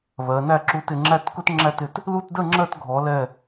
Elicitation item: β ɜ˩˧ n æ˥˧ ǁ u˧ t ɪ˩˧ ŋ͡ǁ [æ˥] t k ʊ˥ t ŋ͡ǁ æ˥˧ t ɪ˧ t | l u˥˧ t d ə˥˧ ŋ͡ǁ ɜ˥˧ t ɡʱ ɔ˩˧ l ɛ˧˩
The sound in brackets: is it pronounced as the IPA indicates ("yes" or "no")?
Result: no